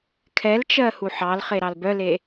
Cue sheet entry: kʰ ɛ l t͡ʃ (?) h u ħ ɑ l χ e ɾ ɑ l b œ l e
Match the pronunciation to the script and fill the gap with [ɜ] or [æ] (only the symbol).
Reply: ɜ